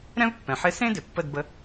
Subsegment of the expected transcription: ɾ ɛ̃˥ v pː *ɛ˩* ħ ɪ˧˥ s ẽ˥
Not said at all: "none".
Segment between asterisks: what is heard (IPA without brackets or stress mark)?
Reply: ɛ̃˩